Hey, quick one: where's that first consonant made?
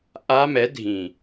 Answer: throat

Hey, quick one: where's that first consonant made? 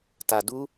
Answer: tongue tip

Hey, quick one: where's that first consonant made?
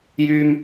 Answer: palate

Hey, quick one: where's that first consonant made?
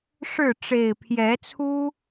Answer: retroflex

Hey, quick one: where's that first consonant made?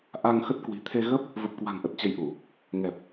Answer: throat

